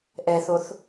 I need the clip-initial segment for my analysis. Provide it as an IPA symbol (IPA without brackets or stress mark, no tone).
ʔ